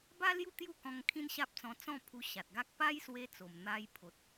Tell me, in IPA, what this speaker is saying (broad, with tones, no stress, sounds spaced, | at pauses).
b a˦ l j u˥˧ t̪ j u˥˧ k ɔ̃˧ ŋ kʰ ĩ˦ n ɕ a˦ p̚ t͡s ɔ̃˧ t͡s ɔ̃˥˧ pʰ u˧ ɕ a˨ t̚ ɡ a˦ k̚ p a˦ j s w e˧ t͡s o˨˩ m n̪ a˧ j pʰ o˨ t̚